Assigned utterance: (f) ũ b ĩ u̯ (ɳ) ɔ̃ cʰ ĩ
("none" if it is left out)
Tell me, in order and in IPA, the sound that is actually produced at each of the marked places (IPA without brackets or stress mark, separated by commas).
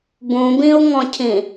b, ŋ